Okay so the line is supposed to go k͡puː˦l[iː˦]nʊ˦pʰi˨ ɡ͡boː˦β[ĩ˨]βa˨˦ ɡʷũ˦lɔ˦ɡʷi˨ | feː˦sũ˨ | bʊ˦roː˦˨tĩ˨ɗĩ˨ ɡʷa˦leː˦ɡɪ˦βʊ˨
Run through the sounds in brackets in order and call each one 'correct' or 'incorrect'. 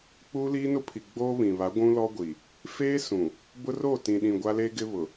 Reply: correct, correct

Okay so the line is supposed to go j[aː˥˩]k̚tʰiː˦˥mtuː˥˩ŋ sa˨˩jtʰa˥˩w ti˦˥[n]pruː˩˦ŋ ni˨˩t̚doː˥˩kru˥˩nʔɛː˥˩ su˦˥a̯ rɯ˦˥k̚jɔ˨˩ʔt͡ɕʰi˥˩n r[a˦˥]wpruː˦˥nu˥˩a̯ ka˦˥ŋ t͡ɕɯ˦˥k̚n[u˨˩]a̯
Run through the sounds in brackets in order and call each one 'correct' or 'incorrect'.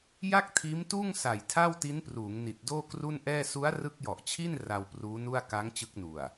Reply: incorrect: a˥˩, correct, incorrect: a˧, correct

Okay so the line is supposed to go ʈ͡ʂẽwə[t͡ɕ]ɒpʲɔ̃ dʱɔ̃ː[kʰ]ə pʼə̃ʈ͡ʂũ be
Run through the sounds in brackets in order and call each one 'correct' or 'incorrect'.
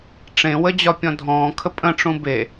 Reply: incorrect: d͡ʑ, correct

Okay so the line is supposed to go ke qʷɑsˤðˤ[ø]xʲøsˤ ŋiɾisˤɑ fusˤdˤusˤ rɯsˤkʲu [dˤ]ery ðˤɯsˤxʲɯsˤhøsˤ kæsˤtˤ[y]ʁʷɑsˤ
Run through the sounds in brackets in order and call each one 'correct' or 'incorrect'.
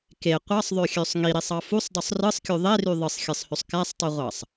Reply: correct, incorrect: ðˤ, correct

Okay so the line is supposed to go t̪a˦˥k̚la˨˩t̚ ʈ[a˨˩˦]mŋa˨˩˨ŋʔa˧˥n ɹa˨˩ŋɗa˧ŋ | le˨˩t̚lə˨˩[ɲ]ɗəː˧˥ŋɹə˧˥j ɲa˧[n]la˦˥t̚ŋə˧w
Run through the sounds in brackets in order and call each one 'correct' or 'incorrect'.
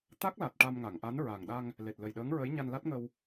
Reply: incorrect: a˧, incorrect: j, correct

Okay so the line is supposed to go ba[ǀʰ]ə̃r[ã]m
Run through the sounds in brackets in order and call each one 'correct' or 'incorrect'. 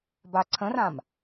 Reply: correct, correct

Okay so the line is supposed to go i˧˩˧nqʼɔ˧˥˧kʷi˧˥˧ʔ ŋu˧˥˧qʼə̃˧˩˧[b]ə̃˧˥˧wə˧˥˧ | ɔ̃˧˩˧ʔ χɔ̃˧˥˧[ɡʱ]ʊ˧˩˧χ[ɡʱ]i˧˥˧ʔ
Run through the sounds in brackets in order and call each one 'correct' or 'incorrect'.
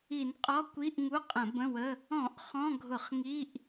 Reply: correct, correct, incorrect: ŋ

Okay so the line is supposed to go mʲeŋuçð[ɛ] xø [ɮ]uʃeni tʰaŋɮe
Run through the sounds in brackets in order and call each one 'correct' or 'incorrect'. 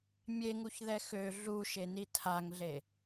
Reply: correct, correct

